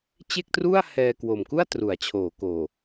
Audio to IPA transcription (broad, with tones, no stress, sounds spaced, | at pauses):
t͡ɕ e˥˩ k̚ t r u˥˩ a̯ h ɛː˧ k w o˨˩ m k u˥˩ a̯ t r u˩˦ a̯ t͡ɕʰ oː˩˦ k oː˨˩